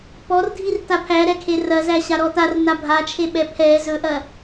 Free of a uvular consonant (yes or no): yes